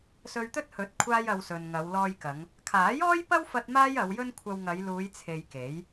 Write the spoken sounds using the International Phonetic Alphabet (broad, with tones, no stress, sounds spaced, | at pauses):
s ɵ˧ ɥ t̪ ɵ˥ t̚ h ɵ˨˥ t̚ kʷʰ aː˥ j ɐ˧ w s ɵ˨ n ŋ ɐ˨˧ w l ɔː˧ j k ɐ˨˧ ŋ | kʰ aː˨˥ j ɔː˥ j p ɐ˥ w f ɐ˥ t̚ m aː˥ j ɐ˨˧ w j ɵ˥ n kʷʰ ɐ˧ w ŋ ɐ˨˧ j l uː˨˧ j t͡sʰ e˨ j k e˨˥ j